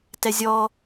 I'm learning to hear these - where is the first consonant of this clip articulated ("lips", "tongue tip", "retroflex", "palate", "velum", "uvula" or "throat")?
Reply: tongue tip